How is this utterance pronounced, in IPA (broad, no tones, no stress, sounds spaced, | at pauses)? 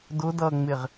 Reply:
d ʊ d ʌː ŋ͡m ɪ ʁ